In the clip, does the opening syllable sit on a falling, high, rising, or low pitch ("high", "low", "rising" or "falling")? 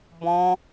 high